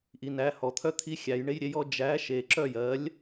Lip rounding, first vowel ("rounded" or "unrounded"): unrounded